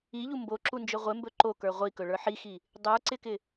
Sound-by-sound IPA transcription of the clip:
i ʎ u m b o ǁ u n d͡ʒ ɵ ʁʷ ɪ m b ɵ ǃ o k ə˞ ʁʷ i k ɵ ɭ ə˞ ħ i x i | dˤ ə˞ ǀ ɪ k ɪ

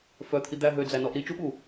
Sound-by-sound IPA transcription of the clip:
f œ t̪ʰ i d̪ æ ɦ ø d͡z æ n ɔ ʔ ɾ i t͡ʃ u ɓ u

